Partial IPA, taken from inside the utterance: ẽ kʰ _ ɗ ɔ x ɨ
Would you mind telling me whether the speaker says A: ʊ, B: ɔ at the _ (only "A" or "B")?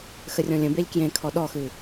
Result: B